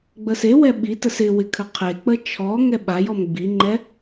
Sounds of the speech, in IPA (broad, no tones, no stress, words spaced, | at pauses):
ɡ͡bəsewɛ ɓitəs ɪwɪ kʰəqʰek͡pə t͡ʃʰɔ ŋɛɓajɔm ɡ͡biŋ͡ǃɛ